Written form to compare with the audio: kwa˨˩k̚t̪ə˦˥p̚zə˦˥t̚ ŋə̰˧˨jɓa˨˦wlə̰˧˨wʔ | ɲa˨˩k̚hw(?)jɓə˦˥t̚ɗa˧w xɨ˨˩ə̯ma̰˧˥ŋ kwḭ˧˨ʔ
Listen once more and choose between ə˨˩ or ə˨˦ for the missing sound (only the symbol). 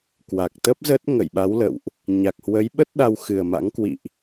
ə˨˦